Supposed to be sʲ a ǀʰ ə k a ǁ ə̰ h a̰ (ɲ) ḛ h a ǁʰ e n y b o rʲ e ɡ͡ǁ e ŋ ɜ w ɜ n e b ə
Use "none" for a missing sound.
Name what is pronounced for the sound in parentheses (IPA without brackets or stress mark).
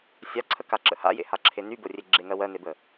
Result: j